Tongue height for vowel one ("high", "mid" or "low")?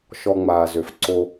mid